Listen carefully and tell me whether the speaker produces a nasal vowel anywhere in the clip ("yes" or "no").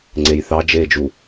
no